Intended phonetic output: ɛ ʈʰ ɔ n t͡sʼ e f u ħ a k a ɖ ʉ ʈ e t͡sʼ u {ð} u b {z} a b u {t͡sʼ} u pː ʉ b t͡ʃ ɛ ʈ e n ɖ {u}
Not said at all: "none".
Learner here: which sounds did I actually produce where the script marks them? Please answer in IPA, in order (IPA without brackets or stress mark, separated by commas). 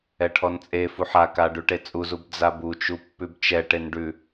z, d͡z, t͡ʃ, ʉ